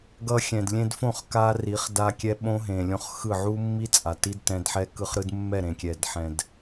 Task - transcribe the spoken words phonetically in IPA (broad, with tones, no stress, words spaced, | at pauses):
ɡʌ˧xʲɛ̃˨dlʲẽ˧dfõ˦˨χ ka˦ri˨˦χ da˧kʲɛ˧ ɓõ˦ɦẽ˨ lʲõ˧χ xɯ˦˨ ʕu˦mːi˦ t͡sʼa˨ ti˦dtɛ̃˧dħɛ˦ kɯ˧χɾɯ˦dmːɛ˦˨ ɾẽ˨kʲɛ˨dħɛ̃˨d